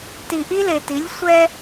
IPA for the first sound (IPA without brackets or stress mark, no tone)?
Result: t